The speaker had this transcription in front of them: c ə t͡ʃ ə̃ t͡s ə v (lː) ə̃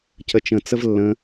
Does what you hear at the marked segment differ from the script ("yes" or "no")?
no